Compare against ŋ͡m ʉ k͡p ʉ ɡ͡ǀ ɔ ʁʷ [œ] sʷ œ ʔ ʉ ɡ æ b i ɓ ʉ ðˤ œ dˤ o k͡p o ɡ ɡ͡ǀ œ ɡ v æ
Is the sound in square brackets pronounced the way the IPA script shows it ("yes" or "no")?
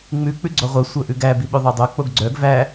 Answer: yes